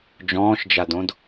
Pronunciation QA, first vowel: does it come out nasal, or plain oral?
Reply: nasal